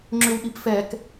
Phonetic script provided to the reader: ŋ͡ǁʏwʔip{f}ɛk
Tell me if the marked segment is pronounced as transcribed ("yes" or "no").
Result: yes